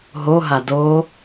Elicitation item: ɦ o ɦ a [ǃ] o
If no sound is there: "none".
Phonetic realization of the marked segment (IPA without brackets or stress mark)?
d